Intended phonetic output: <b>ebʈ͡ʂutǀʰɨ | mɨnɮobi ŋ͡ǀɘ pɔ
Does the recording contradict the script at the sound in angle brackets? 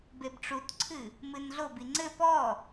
no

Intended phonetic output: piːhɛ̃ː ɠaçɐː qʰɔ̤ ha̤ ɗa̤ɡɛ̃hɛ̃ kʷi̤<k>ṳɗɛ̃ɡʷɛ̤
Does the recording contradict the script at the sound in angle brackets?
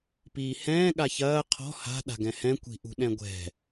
yes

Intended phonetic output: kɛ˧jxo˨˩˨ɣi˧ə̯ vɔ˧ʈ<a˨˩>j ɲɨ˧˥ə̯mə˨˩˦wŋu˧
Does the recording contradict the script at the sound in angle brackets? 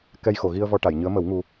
yes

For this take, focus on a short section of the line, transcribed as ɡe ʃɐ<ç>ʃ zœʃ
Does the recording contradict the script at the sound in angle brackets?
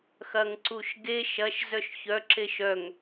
yes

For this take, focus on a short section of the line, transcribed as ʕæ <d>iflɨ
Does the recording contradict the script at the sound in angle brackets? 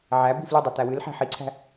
yes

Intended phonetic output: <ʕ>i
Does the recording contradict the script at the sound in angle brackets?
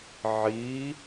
no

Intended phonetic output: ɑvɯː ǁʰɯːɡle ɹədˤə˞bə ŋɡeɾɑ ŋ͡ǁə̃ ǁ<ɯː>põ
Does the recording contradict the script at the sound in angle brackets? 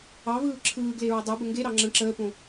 yes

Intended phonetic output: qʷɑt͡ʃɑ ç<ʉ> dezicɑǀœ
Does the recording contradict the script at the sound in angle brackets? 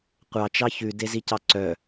no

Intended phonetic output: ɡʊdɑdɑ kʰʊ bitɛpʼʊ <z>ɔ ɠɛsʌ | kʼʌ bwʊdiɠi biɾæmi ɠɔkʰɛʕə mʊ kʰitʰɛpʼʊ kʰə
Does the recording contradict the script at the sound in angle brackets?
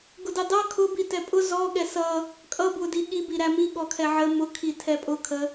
no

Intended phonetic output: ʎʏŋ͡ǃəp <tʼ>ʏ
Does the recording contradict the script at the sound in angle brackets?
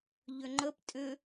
no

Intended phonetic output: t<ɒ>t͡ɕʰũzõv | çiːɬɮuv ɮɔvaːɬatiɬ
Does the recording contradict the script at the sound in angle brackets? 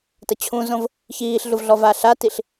yes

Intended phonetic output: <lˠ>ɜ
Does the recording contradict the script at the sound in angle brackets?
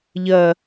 yes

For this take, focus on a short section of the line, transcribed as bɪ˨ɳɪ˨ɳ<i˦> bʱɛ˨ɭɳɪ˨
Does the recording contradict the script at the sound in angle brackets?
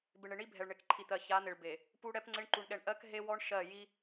no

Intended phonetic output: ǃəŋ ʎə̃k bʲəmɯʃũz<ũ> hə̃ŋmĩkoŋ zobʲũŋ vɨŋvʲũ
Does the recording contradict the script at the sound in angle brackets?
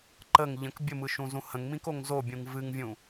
no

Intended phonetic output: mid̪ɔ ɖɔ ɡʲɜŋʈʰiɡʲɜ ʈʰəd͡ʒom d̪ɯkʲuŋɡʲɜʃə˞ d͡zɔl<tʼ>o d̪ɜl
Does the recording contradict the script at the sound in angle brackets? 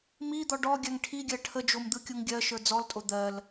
no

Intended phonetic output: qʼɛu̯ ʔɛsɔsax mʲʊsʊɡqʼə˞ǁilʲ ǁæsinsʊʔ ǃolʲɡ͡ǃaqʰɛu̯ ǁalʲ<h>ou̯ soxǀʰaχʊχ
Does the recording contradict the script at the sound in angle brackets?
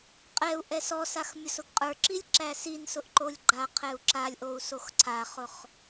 yes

